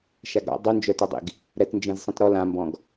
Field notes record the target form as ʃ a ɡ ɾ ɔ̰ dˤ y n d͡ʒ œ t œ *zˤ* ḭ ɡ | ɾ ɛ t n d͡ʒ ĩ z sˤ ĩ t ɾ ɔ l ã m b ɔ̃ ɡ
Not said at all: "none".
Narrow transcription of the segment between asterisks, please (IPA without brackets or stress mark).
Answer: dˤ